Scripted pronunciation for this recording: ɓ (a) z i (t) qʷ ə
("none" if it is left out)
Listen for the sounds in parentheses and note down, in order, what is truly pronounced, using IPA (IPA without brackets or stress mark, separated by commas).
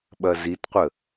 ɐ, t